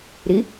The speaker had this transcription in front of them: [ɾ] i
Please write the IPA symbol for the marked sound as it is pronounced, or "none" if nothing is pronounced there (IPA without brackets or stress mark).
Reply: ɾ